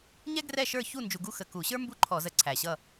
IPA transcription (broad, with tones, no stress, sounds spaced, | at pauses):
ɲ ɛ˥ ɡ r ɛ˥˨ ʃ ə˞˥˨ ç u˥˨ n d͡ʒ u˧ ɡ u˥ x ə˨˩ k u˧˩˧ ɕ ə˞˥ m b u˥˨ ǃʰ ɔ˧˩˧ z ə˨˩ ǀʰ æ˨˩ ɕ ʌ˥˨